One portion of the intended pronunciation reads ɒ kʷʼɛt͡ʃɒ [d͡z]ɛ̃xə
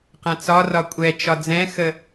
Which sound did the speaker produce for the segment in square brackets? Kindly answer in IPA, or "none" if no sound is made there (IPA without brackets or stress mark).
d͡z